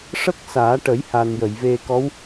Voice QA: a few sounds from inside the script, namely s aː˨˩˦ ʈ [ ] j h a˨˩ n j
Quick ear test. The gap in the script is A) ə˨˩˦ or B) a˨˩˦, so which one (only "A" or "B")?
A